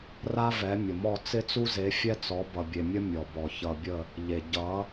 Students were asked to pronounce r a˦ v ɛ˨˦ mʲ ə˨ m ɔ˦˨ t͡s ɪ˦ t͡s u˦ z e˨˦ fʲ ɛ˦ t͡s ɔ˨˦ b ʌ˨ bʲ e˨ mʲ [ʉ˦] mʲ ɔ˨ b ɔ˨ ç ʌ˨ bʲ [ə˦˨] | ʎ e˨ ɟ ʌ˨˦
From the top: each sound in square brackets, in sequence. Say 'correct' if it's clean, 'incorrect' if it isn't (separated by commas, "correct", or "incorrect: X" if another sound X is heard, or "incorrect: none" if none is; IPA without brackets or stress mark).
incorrect: ə˦, correct